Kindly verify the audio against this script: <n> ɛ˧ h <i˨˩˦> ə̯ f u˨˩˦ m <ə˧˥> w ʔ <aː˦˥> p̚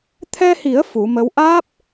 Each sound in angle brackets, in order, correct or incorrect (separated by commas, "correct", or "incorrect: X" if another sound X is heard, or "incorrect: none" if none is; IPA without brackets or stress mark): incorrect: t̪ʰ, correct, correct, correct